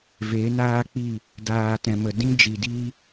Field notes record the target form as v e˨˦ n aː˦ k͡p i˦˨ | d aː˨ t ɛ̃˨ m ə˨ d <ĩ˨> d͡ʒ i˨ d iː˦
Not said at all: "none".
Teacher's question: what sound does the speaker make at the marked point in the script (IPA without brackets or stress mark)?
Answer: ĩ˦